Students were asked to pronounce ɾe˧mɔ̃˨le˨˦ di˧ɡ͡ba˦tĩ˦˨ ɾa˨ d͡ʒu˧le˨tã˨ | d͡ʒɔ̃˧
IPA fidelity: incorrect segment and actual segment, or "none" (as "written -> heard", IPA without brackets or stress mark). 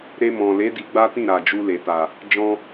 ã˨ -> a˨